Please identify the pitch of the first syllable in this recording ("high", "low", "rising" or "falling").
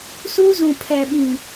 high